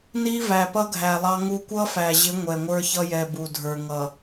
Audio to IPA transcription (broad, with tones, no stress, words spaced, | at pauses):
ni˦væ˨pʌ˦ɡʱæ˨ lˠɑ˦ŋu˦ kʷʌ˦fæ˨ʑɪ˨˦ ŋʷɛ˨ŋʷə˞˦ çʌ˦jɛ˨ bu˨ dʱə˞˨ŋʌ˨